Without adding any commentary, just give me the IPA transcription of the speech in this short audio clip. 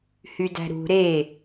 h y d æ̤ ɾ ṳ ɾ e

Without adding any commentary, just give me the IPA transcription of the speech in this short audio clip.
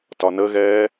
t ɒ n ə ɣ ɛː

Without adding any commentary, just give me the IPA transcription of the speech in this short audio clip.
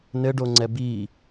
n ɘ ɖ o ŋ͡ǀ ɛ b i

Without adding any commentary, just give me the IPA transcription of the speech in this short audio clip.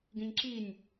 ɡ ĩ ɲ ǁ i nʲ

